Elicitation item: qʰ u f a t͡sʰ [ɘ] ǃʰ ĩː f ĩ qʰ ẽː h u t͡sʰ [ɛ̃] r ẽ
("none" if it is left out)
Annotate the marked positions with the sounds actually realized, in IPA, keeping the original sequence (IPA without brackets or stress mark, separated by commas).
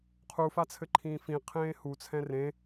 ɘ, ɛ̃